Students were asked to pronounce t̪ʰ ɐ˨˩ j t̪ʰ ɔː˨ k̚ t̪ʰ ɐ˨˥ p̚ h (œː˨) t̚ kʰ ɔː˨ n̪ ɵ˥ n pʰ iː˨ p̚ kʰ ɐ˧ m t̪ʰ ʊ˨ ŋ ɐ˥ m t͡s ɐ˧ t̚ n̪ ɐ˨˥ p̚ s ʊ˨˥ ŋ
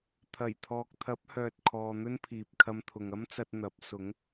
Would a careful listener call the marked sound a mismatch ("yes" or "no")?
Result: no